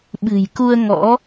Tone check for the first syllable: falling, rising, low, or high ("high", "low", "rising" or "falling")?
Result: low